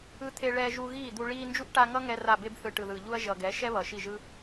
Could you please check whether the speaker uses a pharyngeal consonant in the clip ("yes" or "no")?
no